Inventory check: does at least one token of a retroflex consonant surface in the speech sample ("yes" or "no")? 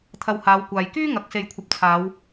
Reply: no